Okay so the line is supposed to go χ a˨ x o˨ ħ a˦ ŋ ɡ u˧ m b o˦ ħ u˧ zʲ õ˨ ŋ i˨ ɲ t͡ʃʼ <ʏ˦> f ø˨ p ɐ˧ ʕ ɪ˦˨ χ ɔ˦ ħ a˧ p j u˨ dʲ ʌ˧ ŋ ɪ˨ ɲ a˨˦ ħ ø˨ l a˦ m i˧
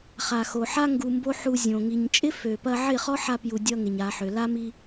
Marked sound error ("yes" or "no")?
yes